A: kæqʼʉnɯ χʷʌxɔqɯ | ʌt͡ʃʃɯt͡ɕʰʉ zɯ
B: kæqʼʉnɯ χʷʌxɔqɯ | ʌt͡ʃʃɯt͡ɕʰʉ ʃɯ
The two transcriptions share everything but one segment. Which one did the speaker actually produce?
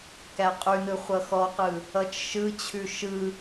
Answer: B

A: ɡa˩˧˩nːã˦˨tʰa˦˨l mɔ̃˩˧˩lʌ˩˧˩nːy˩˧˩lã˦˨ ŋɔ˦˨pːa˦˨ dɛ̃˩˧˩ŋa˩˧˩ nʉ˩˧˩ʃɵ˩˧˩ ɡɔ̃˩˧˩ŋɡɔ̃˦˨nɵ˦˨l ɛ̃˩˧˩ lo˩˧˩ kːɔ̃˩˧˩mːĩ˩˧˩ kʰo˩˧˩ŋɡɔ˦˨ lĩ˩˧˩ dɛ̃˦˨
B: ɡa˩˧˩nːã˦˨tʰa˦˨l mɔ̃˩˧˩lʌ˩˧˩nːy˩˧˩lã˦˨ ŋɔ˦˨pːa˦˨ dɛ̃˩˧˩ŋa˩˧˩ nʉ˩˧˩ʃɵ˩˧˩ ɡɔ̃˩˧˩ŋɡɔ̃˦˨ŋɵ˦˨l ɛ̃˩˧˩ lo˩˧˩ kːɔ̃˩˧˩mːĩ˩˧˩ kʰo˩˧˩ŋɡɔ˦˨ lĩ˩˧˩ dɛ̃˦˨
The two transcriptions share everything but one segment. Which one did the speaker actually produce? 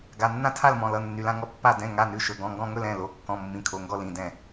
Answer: B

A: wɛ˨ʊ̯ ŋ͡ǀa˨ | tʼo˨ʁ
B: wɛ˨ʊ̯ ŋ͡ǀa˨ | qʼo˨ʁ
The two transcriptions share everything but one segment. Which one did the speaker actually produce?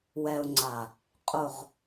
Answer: B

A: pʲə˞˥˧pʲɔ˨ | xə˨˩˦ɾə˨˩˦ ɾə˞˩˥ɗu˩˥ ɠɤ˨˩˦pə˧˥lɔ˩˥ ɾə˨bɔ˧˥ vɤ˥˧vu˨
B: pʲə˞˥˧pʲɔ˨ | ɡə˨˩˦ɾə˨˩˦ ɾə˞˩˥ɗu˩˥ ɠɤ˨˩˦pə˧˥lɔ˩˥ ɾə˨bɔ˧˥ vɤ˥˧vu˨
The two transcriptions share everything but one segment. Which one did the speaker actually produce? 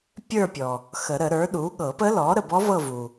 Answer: A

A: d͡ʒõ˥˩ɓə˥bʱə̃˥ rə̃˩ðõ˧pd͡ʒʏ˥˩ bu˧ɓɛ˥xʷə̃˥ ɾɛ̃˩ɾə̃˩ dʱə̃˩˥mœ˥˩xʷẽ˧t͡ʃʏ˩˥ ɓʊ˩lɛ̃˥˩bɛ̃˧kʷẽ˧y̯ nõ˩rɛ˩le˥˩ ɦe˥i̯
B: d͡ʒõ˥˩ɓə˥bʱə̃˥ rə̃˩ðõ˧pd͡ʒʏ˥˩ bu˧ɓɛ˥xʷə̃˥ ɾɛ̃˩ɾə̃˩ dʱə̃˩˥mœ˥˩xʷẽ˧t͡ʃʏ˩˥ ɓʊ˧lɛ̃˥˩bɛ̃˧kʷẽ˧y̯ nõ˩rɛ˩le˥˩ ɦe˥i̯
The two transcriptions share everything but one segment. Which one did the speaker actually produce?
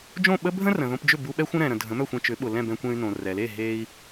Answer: A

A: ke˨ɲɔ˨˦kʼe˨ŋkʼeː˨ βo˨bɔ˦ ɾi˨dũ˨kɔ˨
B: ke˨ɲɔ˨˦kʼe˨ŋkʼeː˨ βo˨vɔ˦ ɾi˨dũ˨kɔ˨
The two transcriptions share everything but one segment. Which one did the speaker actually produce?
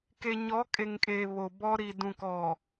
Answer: A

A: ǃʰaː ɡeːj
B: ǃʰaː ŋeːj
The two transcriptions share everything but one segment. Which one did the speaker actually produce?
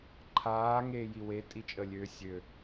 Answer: B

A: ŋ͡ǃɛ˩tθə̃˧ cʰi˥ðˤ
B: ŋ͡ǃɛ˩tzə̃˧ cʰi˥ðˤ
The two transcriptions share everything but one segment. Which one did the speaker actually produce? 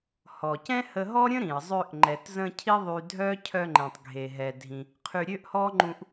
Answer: B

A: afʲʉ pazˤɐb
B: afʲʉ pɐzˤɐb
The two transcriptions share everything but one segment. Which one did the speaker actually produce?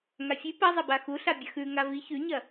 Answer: B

